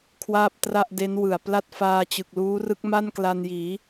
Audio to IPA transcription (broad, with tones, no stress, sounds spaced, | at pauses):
kʰ w aː˥˩ p̚ t r a˥˩ ʔ d e˦˥ n w ɯ˨˩ a̯ p l a˥˩ t̚ f aː˧ t͡ɕ ɯ˨˩ k̚ l uː˦˥ r ɯ˦˥ k̚ m a˥˩ n k l a˧ n j iː˩˦